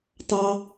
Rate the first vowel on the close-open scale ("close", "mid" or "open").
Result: open